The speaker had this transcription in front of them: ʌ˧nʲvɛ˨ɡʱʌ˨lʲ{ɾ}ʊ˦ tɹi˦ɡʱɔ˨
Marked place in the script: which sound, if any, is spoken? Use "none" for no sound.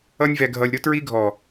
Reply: ɾ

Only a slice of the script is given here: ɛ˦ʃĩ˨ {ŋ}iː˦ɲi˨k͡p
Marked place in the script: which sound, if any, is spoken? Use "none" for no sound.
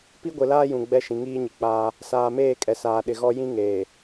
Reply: ŋ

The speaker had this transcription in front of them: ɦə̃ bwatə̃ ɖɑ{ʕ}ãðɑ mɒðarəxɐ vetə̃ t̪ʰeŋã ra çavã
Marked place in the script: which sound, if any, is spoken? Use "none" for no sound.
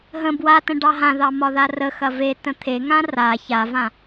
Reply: ɦ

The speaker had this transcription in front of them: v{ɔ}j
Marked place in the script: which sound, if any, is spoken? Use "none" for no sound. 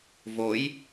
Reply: o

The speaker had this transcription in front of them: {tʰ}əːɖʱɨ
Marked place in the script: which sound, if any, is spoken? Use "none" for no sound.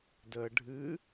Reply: d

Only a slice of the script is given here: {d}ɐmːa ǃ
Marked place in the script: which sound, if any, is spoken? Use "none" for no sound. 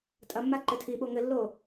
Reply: tʼ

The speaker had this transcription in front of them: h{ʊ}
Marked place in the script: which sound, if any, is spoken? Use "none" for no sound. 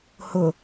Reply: ʊ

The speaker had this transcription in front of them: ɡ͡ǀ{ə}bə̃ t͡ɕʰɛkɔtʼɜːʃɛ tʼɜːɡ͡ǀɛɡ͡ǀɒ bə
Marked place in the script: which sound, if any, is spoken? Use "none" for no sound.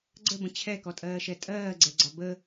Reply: ə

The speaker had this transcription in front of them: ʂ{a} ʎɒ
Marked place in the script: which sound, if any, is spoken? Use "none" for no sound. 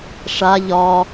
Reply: a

